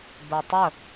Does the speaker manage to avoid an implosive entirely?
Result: yes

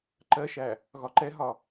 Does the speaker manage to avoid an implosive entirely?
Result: yes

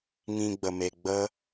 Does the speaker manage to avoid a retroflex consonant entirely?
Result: yes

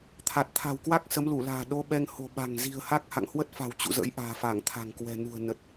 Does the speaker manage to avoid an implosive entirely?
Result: no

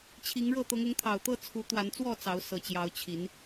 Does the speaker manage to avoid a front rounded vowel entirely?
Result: yes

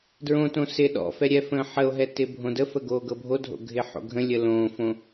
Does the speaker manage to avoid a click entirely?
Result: yes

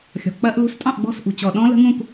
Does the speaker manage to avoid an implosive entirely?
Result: no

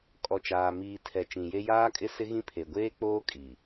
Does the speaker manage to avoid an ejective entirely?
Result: no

